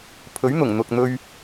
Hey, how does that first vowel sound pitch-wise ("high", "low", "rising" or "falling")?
rising